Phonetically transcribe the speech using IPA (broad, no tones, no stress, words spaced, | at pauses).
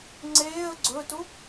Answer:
ŋ͡ǀeːə̯ ɡ͡ǀɵːtu